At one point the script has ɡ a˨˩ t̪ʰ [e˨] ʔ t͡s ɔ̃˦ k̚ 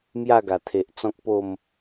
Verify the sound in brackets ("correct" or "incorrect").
correct